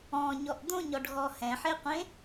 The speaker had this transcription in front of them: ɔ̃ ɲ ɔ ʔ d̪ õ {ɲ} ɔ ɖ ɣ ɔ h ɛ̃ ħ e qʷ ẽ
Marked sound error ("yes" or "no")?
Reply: no